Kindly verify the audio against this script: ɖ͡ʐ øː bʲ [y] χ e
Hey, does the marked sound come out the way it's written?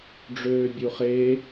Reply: no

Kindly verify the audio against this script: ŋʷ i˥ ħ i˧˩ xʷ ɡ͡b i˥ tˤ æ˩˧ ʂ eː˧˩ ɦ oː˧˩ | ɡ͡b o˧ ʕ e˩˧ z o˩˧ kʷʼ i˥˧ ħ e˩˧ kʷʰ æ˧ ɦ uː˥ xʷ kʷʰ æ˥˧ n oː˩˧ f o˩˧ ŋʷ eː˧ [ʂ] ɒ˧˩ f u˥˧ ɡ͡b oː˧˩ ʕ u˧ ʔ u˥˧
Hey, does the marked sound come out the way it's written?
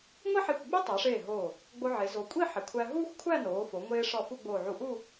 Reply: yes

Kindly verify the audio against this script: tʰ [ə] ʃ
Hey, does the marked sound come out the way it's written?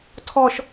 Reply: no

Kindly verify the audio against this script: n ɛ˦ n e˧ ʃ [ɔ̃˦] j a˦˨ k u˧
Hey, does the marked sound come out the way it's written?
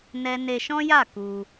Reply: yes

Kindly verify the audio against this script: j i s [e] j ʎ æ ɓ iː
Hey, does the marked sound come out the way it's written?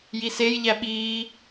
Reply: yes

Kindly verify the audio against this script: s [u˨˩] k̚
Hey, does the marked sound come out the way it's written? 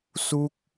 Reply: no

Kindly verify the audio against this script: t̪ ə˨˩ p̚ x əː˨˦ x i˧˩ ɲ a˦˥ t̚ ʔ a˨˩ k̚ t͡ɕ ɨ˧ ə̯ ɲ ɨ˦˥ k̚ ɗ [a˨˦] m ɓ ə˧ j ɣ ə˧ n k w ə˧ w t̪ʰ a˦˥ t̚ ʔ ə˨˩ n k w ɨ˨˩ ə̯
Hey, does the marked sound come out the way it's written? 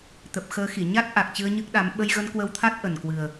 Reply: yes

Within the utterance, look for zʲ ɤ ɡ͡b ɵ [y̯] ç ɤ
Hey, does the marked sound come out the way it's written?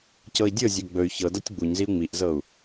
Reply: yes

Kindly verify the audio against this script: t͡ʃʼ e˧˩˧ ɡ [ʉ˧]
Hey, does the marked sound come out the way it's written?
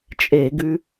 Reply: yes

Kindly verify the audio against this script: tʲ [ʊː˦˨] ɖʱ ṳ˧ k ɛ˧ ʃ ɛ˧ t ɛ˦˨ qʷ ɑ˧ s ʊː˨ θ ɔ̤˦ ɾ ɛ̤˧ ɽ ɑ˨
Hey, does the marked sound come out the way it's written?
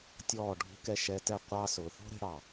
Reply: no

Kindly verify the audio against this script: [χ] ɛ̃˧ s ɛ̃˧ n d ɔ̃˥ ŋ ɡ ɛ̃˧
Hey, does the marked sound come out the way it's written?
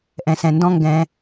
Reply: no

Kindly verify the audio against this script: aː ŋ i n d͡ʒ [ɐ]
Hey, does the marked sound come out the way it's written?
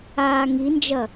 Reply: yes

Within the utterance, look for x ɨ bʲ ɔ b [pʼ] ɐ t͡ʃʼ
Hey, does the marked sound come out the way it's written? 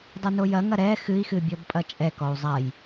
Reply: yes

